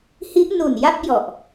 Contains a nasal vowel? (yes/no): no